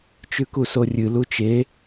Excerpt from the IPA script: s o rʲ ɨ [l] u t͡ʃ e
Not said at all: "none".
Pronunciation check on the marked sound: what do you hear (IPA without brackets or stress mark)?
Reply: l